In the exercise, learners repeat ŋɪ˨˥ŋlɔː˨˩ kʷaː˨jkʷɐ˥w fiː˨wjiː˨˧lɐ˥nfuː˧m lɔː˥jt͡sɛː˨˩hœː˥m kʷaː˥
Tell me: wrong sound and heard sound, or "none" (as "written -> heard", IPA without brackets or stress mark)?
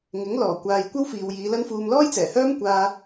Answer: none